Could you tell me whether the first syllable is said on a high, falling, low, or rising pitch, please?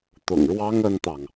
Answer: low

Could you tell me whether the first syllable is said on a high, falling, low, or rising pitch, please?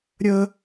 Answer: high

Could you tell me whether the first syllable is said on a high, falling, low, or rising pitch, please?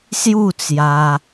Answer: falling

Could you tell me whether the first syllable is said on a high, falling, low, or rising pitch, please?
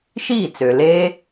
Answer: falling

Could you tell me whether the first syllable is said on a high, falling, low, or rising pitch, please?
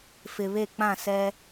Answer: low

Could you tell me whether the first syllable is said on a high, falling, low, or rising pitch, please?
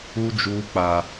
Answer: high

